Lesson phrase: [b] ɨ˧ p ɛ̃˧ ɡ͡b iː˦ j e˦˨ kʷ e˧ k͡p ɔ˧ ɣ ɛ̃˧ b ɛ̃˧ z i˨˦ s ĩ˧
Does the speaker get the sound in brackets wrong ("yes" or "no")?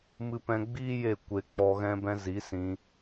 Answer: yes